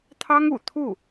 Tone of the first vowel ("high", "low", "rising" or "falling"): high